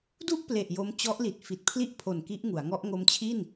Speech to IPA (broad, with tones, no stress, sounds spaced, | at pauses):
d u˥˩ ʔ p l e˨˩ ʔ j o˧ m t͡ɕ ɔ˦˥ ʔ l i˨˩ t̚ f i˨˩ t̚ pʰ l i˥˩ ʔ pʰ o˨˩ n k i˦˥ ʔ ŋ u˩˦ a̯ ŋ ɔ˦˥ ʔ ŋ o˧ m t͡ɕʰ i˥˩ n